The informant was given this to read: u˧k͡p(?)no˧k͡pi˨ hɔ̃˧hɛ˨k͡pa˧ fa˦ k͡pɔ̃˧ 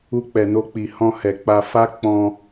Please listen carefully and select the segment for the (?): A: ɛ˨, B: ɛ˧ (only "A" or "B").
A